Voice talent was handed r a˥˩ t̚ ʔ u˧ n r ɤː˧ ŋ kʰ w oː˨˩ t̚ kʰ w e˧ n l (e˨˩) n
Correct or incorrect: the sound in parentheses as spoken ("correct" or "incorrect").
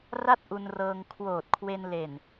correct